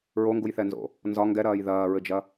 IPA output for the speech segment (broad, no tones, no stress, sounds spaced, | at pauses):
ɹ o ŋ ɡ u j θ ɛ n z o̰ | n z ɒ ŋ ɡ ɛ ɾ ɐː j ð ɐː ɹ ɘ d͡ʒ ɐ